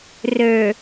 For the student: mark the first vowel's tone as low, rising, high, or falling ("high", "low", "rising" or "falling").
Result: low